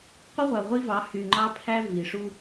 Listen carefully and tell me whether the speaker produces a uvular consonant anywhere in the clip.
yes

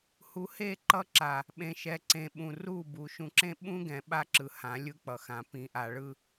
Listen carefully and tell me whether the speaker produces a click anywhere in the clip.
yes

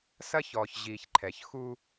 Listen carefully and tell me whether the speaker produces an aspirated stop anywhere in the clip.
yes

